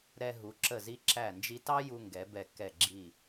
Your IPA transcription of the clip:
ɾɛ˧ɦu˩˧ ǁə˧˩zi˧ ǁæ˧˩nd͡ʒi˧tɑ˥ju˧ ŋɡɛ˩˧bɛ˧˩kɛ˧˩ ɡ͡ǁi˧˩

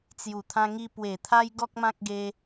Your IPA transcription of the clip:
t͡sju˨˩ t̪ʰã˧ŋi˧ pwe˨˩ t̪ʰa˦jɡɔ˦k̚mã˦k̚ɡe˦

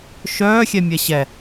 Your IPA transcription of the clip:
ʃœːxʲɛ mʲɛɕɛ

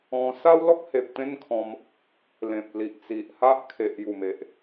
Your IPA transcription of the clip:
ɔ̃˧ sa˦wlɔ˦k̚he˨p̚ t̪ẽ˦nkʰɔ̃˧m | lẽ˨p̚li˨ʔt͡si˨ʔha˦ʔ kʰe˨ʔju˨˩me˨ʔ

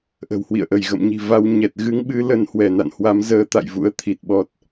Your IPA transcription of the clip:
ʔə̤˨˩whwḭ˧˨ə̯ʔə˧˩j ɣə̰˧˨mɲi̤˨˩va˧w ɲɛ˨˩t̚ ɣɨ˧ŋɓɨ˧ lə˧nhwɛ˧˩na̰˧˨nhwa˨˦m zəː˧t̪a̰˧˨jvṵ˧˥ə̯ t̪ʰi˨˩t̚ɓɔ˦˥t̚

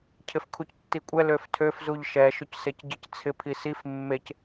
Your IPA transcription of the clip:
cʰɪfkʰuctːikʷʼɛ løftʰøf zuʎʃɛ ʃɵcsecɟɪc t͡sʰɪ pʰisif mːec

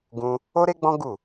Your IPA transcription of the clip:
ɡũ˦ | o˦ɾe˦ɡ͡bɔ̃˦ ɡu˦˨

